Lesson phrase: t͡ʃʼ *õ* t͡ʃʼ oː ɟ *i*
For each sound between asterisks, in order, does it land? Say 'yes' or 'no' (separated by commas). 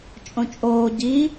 yes, yes